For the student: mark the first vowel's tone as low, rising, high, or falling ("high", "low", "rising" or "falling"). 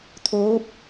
rising